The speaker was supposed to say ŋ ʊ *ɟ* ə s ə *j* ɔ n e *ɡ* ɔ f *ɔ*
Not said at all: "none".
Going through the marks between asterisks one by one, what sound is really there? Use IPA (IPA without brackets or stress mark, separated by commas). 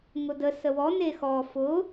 d, w, x, ʊ